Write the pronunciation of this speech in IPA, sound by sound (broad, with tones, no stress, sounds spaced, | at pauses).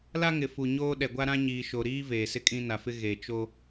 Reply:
l a˦ ŋ ɪ˨ f u˨ ɲ oː˦ ɗ ɛ˨ ɡʷ a˦ ɾ ã˦ ɲ iː˨ ʃ o˨ ɾ iː˦ v eː˨ s ɪ˦ kʼ ĩ˦ n a˨ f ɪ˦ ɣ e˨ t͡ʃ o˦